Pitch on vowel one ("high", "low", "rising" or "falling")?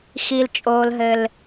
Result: high